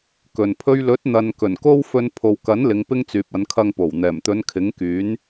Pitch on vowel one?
low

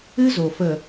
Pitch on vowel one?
high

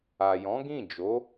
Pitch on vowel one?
low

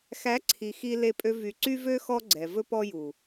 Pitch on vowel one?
rising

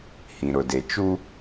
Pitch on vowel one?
low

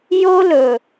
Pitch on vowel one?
high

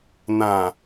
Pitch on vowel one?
low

